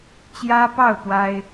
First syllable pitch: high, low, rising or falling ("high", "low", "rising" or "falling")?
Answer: high